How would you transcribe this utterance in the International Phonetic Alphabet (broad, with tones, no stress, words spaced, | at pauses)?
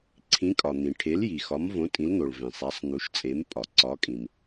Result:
ǀʰĩ˩˥kʼɒ˩ n̪ĩ˩ʈʰe˩˥l ji˩ xɒ˩˥mvõ˩˥ tʼĩ˩˥ln̪o˩ɭ vẽ˩ sˤæ˩˥sˤn̪u˩˥ʃt͡sʼe˩˥m pʼɒ˩ǀɒ˩˥kʼĩ˩m